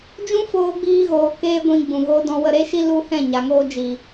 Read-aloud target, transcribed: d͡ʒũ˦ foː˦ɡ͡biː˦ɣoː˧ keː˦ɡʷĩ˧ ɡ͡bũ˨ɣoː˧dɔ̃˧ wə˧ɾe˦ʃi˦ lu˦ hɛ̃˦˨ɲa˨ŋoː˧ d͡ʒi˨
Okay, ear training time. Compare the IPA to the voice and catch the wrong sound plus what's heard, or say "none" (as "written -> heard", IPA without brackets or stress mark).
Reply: none